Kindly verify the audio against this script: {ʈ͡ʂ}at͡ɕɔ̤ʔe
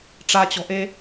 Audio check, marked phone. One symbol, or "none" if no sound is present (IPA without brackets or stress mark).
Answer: ʈ͡ʂ